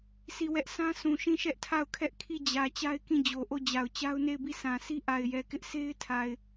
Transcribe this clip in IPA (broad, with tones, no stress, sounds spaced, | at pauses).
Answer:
sʰ i˦˨ w ɛ˦ ʔ s ã˦ s ũ˨ ʃ ĩ˦˨ ʃ ɛ˦ ʔ tʰ a˦˨ ʊ̯ kʰ ɛ˦ ʔ kʰ i˦˨ d͡ʑ ä˨ t͡ɕ a˦ ɪ̯ k ĩ˦˨ d͡ʑ o˨ ʔ o˦˨ d͡ʑ a˨ ʊ̯ t͡ɕ a˦ ʊ̯ n e˦˨ ɪ̯ b i˦˨ s ã˨ sʰ i˦ ʔ a˨ ɪ̯ j ɛ˨ k ɪ˦ ʔ sʰ e˦ ɪ̯ tʰ a˨ ɪ̯